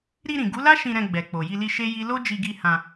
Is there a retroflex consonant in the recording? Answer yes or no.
no